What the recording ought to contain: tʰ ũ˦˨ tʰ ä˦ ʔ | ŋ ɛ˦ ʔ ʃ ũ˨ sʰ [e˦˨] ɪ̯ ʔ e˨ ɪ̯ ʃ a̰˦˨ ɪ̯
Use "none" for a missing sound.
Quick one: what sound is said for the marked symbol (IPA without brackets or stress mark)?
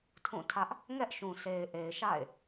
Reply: e˨